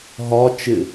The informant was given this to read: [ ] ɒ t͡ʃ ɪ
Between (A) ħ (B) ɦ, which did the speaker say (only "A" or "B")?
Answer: B